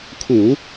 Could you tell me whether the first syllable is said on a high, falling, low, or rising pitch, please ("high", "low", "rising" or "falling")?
low